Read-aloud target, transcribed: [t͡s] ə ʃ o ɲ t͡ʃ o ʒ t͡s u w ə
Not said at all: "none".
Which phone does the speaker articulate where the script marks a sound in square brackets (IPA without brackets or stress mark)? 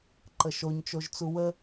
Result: ǃ